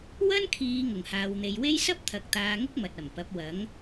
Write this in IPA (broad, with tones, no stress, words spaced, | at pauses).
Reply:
wɐ˥nkʰiː˨˧ ŋʊ˨˩ŋhaː˨wn̪e˨jwe˥j sɐ˥p̚t̪ʰɐ˨k̚ t̪aː˧ŋʊ˥k̚ mɐ˨t̚ɐ˨˩mpɐ˨˥p̚ wɐ˨˥ŋ